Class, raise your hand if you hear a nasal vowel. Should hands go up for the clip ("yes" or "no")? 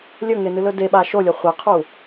no